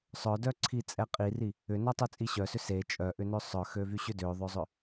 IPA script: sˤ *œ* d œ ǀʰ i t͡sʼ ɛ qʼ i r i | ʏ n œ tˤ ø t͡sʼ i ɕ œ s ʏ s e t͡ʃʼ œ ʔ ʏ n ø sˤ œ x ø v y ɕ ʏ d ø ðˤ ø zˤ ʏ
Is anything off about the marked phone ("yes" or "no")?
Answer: no